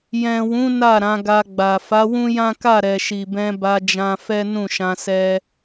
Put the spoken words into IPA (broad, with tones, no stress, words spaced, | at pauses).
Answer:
jɛ̃˨wũ˨˦ na˦˨ ɾã˨˦ɡa˧ɡ͡ba˨ fa˨˦wũ˦jã˦ka˦˨ ɾɛ˨ʃi˨bɛ̃˧ ba˧d͡ʒã˧fɛ˦ nũ˦˨ʃã˧sɛ˦